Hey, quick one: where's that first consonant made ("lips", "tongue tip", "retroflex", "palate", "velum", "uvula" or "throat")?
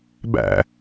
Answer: lips